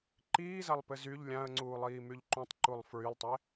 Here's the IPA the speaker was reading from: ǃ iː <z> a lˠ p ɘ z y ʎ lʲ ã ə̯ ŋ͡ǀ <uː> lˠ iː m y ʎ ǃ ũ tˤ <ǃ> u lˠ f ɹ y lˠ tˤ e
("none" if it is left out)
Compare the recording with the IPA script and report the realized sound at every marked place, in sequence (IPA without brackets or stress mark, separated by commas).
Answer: z, uː, ǃ